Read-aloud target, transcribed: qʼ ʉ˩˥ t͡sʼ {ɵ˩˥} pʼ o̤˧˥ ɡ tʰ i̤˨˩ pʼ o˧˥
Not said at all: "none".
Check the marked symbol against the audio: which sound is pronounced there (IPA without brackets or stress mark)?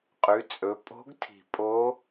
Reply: ɵ˩˥